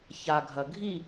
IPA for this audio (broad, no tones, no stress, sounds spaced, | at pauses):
ç a ɡʱ ɐ ɡʱ i